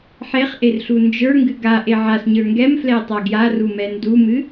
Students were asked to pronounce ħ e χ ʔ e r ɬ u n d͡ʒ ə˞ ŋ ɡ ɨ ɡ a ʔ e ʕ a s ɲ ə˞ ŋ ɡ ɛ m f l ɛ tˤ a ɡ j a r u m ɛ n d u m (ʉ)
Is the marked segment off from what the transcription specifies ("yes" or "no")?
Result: yes